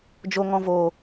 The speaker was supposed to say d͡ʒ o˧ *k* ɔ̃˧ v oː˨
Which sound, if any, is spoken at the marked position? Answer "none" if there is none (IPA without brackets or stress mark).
ŋ